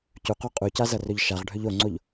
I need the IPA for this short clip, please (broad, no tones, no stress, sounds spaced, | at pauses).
c u q o qʼ u c a z ʌ r ɵ ʎ ʃ a ʁ ɖʱ ɵ ʎ o ŋ͡ǀ o ʎ